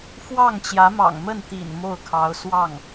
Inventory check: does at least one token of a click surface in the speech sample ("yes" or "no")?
no